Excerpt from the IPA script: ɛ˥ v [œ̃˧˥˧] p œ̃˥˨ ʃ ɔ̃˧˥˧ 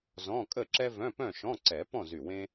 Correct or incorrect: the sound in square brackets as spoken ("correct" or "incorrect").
correct